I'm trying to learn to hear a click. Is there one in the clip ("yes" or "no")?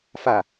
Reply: no